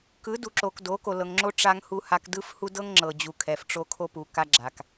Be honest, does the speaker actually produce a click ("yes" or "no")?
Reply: yes